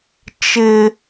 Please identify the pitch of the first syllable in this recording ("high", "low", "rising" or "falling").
high